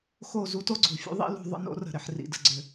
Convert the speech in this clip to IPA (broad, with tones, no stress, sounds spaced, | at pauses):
x o˦˨ z u˦ t o˦ ɡ͡ǀ ṳ˨ fʲ ṵ˦ ðˤ ḭ˦ l ṳ˧ ðˤ ə̰˦ n o̰˦ r ə̤˨ ɾ ɪ˨ ħ r ḭ˨ d ə̤˨ ɡ͡ǀ ʏ˨